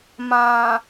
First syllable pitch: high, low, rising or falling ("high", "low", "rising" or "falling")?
low